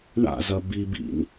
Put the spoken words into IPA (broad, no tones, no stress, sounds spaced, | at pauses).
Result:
ɳ a̰ z ɐ b i b ḭ n